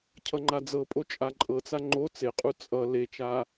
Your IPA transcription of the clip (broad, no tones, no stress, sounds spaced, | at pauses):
cʰ ʌ ŋ͡ǃ a d͡z ɤ pʼ o t͡ʃʼ a ǃʼ ɤ t͡s a ŋ͡ǃ o t͡s e qʼ u t͡sʼ ʌ l e t͡ʃ a